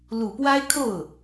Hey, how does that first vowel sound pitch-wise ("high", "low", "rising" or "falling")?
low